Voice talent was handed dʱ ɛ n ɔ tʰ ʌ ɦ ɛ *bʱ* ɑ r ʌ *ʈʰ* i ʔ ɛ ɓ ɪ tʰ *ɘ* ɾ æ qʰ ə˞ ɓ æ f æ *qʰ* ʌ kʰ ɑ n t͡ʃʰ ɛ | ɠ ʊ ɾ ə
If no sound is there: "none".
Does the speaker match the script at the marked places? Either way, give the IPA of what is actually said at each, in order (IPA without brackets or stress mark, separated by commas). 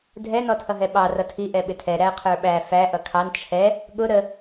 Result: ɓ, tʰ, ɛ, ʔ